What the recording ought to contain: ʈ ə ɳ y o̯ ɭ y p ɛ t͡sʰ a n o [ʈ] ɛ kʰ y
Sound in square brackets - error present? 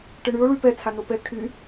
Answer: yes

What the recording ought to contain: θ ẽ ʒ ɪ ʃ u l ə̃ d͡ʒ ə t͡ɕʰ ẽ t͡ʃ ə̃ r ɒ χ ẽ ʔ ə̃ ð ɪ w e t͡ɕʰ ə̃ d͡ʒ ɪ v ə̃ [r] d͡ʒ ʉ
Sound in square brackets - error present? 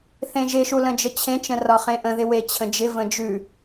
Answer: yes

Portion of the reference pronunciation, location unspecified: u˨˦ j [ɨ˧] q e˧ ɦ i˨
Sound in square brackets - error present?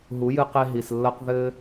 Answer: no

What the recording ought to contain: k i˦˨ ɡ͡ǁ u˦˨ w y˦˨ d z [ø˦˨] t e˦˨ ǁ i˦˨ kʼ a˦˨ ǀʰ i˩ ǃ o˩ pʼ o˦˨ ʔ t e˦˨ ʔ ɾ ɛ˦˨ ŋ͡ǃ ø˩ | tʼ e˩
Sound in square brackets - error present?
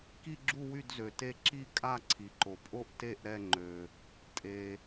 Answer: yes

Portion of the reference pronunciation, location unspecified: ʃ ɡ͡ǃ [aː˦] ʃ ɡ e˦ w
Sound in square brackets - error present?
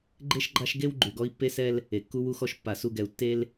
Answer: yes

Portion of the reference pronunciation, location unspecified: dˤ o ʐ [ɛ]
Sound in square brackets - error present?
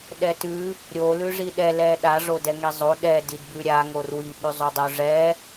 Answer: no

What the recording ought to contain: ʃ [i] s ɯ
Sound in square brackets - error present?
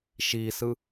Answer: no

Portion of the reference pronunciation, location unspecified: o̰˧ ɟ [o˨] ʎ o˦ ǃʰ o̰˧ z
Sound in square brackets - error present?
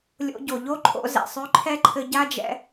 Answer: no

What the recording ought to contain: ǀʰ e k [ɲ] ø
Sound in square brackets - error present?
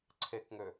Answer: yes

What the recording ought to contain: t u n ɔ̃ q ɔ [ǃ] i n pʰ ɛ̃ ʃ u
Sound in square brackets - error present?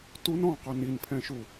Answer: yes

